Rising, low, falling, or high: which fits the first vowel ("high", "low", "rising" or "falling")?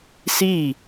falling